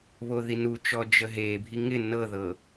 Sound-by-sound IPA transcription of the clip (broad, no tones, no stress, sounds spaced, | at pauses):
β o ð i n u t͡ʃ ɔ d͡ʒ ə ɦ e bʱ i ŋ ɪ n ɤ ð ɤ